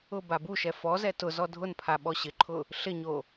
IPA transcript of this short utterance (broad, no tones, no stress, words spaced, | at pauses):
ʊ babuʃɛ fɔzɛ tʊ zɔdʱʊnpʰa ɓɔɕɪǃʰʊ | ɬɪɲo